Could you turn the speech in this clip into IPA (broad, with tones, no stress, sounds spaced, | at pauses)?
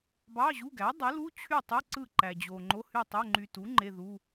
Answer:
b ɑ˧˥˧ ʑ u˧˥˧ ɡ æ˩˥ dˤ ɯ˩˥ l u˧˥˧ t͡ɕʰ y˥˨ tˤ ɯ˧˥˧ ǀ ɯ˥˨ ǃ æ˨ d͡ʑ o˨ ŋ͡ǃ o˧˥˧ h y˥˨ tˤ o˧˥˧ ŋ͡ǃ y˨ t u˩˥ ŋ͡ǃ e˧˥˧ ð u˧˥˧